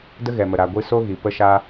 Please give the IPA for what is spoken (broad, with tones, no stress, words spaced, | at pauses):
də˦ɣɛ˨mə˨ ɾa˨ɡʷɨ˧so˦ ɣi˨ pə˦ʃa˦